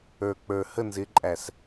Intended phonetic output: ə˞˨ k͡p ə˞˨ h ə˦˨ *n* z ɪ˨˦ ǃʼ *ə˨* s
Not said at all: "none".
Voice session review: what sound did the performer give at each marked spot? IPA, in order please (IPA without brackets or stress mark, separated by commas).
n, æ˨